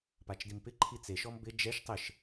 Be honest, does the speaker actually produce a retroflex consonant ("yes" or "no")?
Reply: no